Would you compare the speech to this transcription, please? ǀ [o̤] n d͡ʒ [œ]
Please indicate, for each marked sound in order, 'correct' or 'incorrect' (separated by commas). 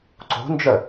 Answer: correct, correct